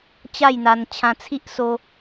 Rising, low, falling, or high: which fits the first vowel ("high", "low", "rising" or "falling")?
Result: falling